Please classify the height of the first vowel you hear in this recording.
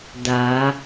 low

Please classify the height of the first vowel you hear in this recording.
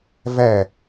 low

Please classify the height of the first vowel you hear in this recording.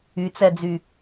high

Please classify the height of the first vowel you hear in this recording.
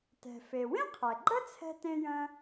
mid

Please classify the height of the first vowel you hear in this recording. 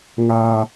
low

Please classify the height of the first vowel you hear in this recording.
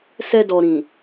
mid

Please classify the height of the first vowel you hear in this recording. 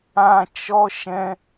low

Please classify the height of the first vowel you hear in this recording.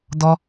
mid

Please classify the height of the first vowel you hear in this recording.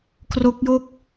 mid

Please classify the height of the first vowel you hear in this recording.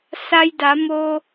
low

